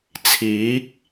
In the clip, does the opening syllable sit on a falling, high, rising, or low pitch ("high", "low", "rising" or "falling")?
rising